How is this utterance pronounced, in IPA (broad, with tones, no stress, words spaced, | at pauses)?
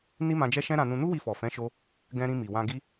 ni˦mã˧d͡ʒɛ˦ ʃɛ̃˦ɾã˧nũ˧ nu˦wi˧fɔ˨fɛ̃˨˦ ʃo˦ | ɡɛ̃˧ɾĩ˧mi˨ wã˧ɡi˦